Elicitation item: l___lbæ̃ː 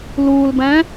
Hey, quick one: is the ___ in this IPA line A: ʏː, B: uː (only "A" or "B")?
B